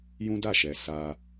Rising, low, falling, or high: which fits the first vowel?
high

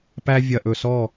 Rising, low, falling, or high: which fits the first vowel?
high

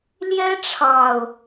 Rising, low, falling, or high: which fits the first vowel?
high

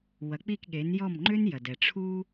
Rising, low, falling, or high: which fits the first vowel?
rising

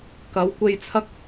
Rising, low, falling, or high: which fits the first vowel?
rising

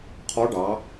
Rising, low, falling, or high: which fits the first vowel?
rising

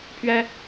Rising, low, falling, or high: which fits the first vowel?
high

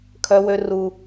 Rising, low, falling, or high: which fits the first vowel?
high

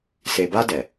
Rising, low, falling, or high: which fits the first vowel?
low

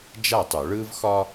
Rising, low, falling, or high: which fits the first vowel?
falling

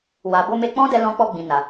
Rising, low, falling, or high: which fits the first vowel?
low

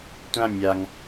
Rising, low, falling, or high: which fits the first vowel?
high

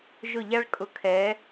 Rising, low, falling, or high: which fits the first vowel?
falling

